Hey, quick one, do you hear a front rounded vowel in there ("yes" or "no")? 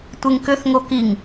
yes